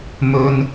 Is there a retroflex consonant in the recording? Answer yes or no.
no